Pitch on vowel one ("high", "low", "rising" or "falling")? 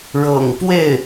low